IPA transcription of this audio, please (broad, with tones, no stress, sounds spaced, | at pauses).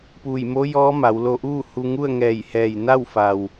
p uː˧˩ j m o˧˥ j ɔː˧˥ m a˩˧ w l o˧ ʔ uː˥˨ h u˧ ŋ u˥˨ ə̯ ŋ ɛː˧˩ j h ɛː˧˩ j n a˥˨ w f a˩ w